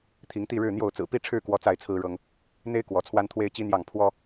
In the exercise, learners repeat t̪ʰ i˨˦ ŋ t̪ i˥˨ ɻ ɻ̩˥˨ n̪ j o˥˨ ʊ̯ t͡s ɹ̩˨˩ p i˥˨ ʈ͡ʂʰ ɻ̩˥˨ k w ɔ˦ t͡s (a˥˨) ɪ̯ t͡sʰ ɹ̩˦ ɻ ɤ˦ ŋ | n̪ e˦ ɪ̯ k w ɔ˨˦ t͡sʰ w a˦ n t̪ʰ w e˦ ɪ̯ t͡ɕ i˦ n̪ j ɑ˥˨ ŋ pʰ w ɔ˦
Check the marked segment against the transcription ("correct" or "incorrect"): correct